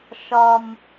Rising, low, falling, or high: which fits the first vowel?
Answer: high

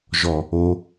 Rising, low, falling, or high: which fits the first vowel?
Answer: low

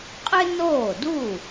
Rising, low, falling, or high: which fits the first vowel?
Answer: high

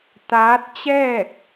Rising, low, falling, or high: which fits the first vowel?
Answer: rising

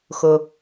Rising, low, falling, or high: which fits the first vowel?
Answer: low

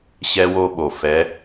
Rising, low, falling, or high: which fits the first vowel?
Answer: high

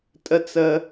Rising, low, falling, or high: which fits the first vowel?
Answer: high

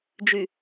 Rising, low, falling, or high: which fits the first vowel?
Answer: low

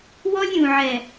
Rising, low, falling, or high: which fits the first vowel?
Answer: high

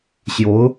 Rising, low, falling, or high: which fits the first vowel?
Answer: rising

